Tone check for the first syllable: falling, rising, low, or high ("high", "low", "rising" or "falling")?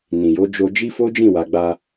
low